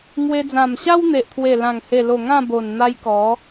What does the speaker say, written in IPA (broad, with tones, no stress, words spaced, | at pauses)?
ŋwe˧d͡zã˨˩mɕa˦wn̪e˨ʔ t̪ʰwe˨˩lã˨˩ŋhe˨˩lo˨˩ ŋã˥˧bo˨˩n n̪a˧j kɔ˨˦